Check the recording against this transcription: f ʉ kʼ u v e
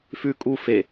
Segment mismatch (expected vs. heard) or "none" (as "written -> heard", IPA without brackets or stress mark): v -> f